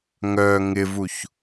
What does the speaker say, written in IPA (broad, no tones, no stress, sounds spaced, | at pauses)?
ŋ œ ŋ ɪ v u ç